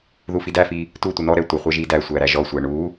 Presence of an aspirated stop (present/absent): absent